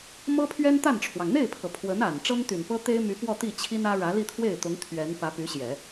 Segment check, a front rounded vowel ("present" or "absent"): present